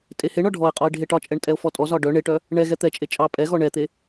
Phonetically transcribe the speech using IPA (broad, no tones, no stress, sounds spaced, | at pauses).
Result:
tʼ e h e ɳ ɒ ɖʱ ɔ e̯ qʼ ɒ e̯ ɖʱ e ʈ ɒ t͡ʃʼ ɛ ɳ tʼ ɛ o̯ f ɔ tʼ ɔ z ɒ ɖ œ ɳ e ʈ œ | ɳ ɛ ɣ ɛ t̪ ɛ t͡ʃʼ e t͡ʃʼ ɑ pʼ ɛ ɣ ɔ ɳ ɛ t̪ e